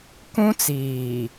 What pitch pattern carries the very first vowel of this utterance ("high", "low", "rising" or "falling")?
high